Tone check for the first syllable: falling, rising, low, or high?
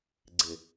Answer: low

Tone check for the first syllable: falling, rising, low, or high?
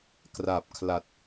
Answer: low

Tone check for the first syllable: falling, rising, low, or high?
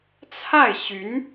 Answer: falling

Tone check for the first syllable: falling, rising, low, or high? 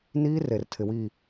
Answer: high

